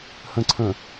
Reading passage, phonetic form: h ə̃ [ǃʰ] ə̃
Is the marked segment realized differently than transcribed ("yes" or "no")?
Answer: yes